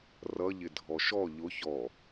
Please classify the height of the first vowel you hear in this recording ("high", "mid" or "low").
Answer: mid